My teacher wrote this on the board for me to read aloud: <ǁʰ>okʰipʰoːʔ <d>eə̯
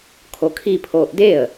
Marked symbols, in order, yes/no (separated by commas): no, yes